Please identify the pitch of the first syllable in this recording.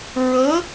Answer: rising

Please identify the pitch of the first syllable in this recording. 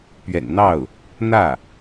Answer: low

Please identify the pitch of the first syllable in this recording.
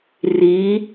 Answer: rising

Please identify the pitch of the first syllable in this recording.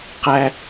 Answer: high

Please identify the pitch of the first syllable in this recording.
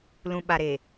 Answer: low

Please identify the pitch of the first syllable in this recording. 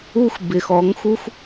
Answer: high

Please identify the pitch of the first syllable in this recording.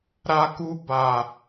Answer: high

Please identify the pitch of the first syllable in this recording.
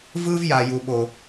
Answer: high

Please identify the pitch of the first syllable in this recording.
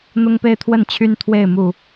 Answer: high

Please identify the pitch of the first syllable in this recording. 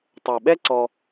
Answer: low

